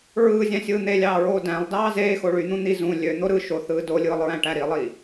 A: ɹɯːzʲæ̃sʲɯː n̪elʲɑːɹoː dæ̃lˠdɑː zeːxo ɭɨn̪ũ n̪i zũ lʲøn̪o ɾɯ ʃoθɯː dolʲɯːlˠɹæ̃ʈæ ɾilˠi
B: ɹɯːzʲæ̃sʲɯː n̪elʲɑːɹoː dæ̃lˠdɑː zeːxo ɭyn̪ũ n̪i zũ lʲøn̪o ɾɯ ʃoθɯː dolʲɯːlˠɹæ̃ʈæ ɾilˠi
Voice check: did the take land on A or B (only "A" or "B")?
B